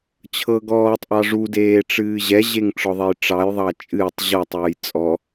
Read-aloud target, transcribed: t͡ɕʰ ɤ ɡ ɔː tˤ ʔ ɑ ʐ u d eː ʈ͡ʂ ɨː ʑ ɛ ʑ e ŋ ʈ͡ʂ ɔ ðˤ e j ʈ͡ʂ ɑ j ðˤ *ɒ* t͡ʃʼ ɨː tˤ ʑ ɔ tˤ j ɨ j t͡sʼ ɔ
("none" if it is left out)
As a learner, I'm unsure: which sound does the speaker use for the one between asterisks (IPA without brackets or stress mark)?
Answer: ɑ